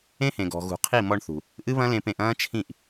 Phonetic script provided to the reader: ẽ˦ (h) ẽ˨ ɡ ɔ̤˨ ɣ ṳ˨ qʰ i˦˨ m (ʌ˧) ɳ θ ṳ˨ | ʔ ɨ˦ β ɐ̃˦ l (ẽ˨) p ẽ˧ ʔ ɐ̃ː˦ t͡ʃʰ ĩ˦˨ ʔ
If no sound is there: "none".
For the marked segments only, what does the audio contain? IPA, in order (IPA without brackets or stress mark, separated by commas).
h, ɔ˧, ẽ˧